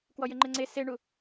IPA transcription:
k w ɔ j ɘ ŋ͡ǃ ɘ ŋ͡ǀ e s e ɳ u

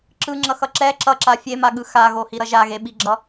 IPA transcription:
ǁ ɯ ŋ͡ǁ ʌ x ʌ ǁ ɛ ǁ ʌ ǁ a fʲ e m a ɠ ɯ x a ɣ o h i ɾ ʌ ʒ a ɣ e ɓ i ɡ͡ǁ ʌ

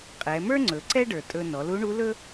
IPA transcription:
qʼ ɛ˩˧ m ə˞˥ ŋ͡ǀ ɵ˩˧ ǀ ɛ˥ ɖ ə˞˩ tʼ ɵ˧ n ɔ˩˧ l u˧˥ ɳ u˧˥ l ɵ˥

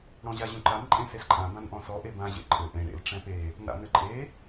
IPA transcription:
ɽ ɔ̃ ʑ a ʑ ũ ǃ a n ǃʼ ẽ s e s ǃʼ ã b ã n ʔ ɔ̃ s ɔ ʔ e b ã ʑ ḛ ǃʼ ɘ ʔ ẽ ɽ ḛ l ʈ͡ʂ ɛ̃ p e | n a̰ n ɘ ǃʼ e

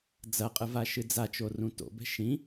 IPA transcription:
d͡z ɐ qʼ ɨ v a ʃ ɨ d͡z a t͡ʃ o r ũ t o̰ b ɛ̤ ʃ ĩ

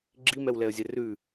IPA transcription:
ɡ͡ǁ i m ɛ w l ɛ ə̯ zʲ ɛ r ʉ

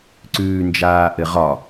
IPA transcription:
ǀ ʉː n d͡ʒ aː ʔ ɘ ʁ ɒ

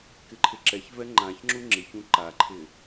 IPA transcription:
k ɪ ǃʰ ɪ ǁ ɛ ç v ɛ ŋ͡ǃ ã ç ŋ͡ǁ u ŋ͡ǁ ɪ ç ũ ǃ a ǃʰ ɪ

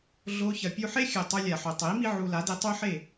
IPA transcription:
ɮ o˧ ç ɐ˧ pʲ u˧ ħ e˦ xʲ ɨ˨ tˤ ɵ˧ lʲ a˨ ħ ɵ˨ tˤ i˨˦ m i˦ ʕ u˧ l a˨˦ d i˧ tˤ ʉ˦ ħ e˦˨

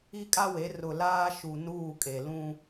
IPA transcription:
i˦ kʼ a˦ w e˨˦ r ʊ˨ l aː˦ ʃ u˨ n uː˦˨ kʼ e˨ l ũ˦

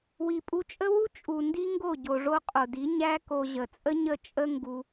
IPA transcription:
w i˨ pʼ u˧ t͡ʃʼ ə˦ w u˦ t͡ʃʼ u˨ n d i˦ ŋ ɡ o˦˨ ɟ o˨ ʐ o˧ qʼ o˨ d i˨˦ ɲ æ˦ k o˧ ʑ ə˨ t͡sʼ ə˦ ɲ ə˦˨ t͡ʃʼ ə˦ ŋ ɡ u˧

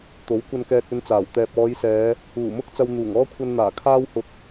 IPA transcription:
t̪ o˨˥ w kʷ ɐ˧ n k ɛː˧ t̚ ɵ˧ n t͡s aː˨˩ w t̪ ɛː˨ p̚ ɔː˨˧ j s ɛː˨˧ | uː˨˩ m ʊ˥ k̚ t͡s ɐ˧ w n̪ uː˨˩ ŋ ɔː˥ kʷʰ ɐ˧ n n̪ aː˨˩ kʰ aː˥ w h ʊ˧ k̚

